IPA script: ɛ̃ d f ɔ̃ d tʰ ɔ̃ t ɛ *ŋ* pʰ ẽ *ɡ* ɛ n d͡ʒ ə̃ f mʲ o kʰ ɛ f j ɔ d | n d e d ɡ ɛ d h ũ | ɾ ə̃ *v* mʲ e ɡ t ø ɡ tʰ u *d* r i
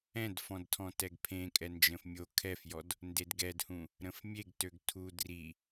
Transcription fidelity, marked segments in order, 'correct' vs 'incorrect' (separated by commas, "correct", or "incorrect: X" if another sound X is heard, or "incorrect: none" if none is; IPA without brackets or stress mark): incorrect: ɡ, incorrect: kʼ, incorrect: f, correct